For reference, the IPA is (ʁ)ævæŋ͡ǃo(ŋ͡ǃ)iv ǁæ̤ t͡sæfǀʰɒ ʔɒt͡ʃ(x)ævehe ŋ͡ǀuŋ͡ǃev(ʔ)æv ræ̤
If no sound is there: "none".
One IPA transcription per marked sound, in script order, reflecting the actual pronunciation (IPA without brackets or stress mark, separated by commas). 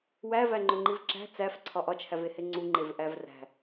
w, ŋ͡ǃ, h, ʔ